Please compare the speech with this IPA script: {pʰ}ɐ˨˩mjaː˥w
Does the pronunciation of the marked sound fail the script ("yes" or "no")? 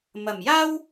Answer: yes